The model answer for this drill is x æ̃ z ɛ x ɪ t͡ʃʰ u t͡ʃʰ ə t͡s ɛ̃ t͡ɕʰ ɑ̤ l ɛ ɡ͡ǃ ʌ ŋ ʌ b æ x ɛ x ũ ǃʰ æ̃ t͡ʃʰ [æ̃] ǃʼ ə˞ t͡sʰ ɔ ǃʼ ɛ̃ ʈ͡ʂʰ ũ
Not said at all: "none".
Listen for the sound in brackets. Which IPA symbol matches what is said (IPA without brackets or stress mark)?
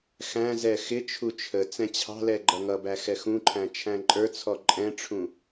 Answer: æ̃